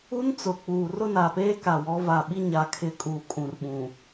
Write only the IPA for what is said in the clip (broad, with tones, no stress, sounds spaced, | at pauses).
u˦ n t͡s ʊ˨ k͡p uː˨ r ʊ˦ n a˨ p eː˦ k a˨ w ɔ˨˦ v a˨ ɓ i˦ ɲ a˨ kʰ ɪ˨ kʼ uː˨ kʼ ũ˨ r ɓ ũ˨